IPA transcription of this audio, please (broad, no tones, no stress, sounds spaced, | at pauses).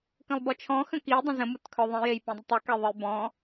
k ə̃ lˠ b ɔ t͡ʃʰ ɔ̃ x ə̃ k i dˤ ə̃ z ə̃ m u t kʰ œ ðˤ ĩ j e j p ĩ dˤ ə tˤ u k e ðˤ ə j b ɔ̃